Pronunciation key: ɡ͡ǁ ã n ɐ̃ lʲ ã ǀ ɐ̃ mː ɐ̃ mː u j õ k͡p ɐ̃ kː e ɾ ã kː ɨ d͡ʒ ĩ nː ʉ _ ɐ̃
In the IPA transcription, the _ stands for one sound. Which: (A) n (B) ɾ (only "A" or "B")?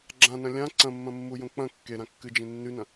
A